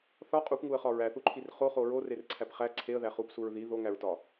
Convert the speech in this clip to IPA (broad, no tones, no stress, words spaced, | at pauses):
θɒ qʼupŋuə̯χɒ ɹæθuǃʰir χoχo ɹorerǀʰæp χæ ǀʰeə̯ðæ χupsuɹ ði ðoŋæɹtɒ